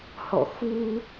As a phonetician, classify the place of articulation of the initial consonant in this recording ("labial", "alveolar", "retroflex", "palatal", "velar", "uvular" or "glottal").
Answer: glottal